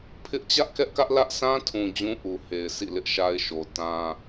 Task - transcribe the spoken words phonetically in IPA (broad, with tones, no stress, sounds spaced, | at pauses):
pʰ ɪ˦ ʔ t͡ɕ ä˦ ʔ k ɛ˦ ʔ k ä˦ ʔ l ä˦ ʔ sʰ ã˦ tʰ ũ˨ d͡ʑ ũ˦ ʔ u˨ h e˨ ɪ̯ s ḭ˦˨ l ɪ˦ ʔ ʃ a˦ ɪ̯ ʃ o˨ t ã˦